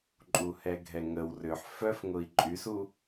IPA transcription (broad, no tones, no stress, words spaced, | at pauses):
ǃʼuhɛɡʱɛŋəw rʏħ fœfŋʊi̯ ǃʼysu